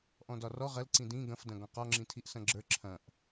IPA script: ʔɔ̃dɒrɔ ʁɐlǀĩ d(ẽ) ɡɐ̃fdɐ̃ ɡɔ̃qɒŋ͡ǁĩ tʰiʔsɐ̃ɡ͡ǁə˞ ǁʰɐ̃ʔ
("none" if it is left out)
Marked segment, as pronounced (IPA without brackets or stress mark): ĩ